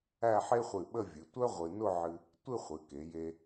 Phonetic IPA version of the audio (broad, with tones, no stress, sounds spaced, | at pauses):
æ˥˧ ħ e˥ χʷ ɨ˧˩ ɓ ə˥˧ vʲ ɨ˩˧ tʷ œ˥ ʁʷ ɨ˧ n ʊ˥˧ ʕ ɨ˧ | tʷ ɨ˥˧ χʷ ɨ˩˧ k e˩˧ j e˧